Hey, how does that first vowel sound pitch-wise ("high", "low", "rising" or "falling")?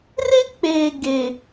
high